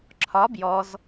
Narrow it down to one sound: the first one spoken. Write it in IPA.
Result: ǁʰ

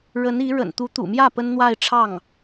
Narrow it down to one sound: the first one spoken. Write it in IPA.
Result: ɻ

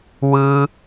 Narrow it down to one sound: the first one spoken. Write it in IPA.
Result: w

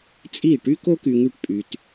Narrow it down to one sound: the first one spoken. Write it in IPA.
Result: t͡sʼ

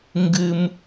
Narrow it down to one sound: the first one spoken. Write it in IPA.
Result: ŋ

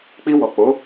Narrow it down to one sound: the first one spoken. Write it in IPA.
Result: k͡p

